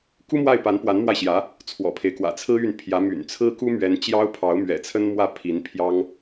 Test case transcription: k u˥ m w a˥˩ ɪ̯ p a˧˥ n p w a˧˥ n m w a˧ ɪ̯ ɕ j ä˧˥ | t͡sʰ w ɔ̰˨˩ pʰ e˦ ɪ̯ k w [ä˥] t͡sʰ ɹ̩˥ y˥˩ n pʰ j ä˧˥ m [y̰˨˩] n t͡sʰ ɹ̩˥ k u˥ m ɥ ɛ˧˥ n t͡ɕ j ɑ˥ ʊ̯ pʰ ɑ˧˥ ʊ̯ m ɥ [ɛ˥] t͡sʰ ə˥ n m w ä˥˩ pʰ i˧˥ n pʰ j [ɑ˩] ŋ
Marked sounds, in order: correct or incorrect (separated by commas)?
incorrect, correct, incorrect, incorrect